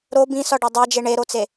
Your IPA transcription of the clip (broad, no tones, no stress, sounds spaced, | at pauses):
ɾ o b ĩ s ɒ ɖ o dˤ æ d͡ʒ e ɳ e ɾ o t͡s e